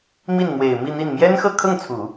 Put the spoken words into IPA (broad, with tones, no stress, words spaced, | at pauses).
mi˥˩n mwe˨˩ɪ̯ mi˥˧ n̪i˥˩n mjɛ˥n xɤ˥˧kʰɤ˥˩ŋt͡sʰu˨˩˦